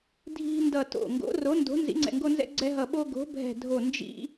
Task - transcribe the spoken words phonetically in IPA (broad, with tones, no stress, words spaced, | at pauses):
dʱi̤˦ndʌ˧˩ to̰˧˩ ŋɡo̰˨˥ro˨˥ ndo̤˨˥ nzḭ˨˥ŋ͡ǀɛ̰˧˩ŋɡo˦nzɛ̰˦ ɡ͡ǀɛ˦ ɦʌ˧˩ɓo˦ ɡo̤˨˥bʱɛ̤˧˩dʱo˧˩ nd͡ʒḭ˦